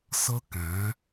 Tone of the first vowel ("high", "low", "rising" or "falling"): high